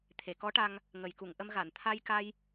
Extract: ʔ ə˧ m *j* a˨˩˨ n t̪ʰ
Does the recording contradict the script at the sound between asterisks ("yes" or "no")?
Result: yes